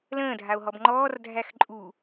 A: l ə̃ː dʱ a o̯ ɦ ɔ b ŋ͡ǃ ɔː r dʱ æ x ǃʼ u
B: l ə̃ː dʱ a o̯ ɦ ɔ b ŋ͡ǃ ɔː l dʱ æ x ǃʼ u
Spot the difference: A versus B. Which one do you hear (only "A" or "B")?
A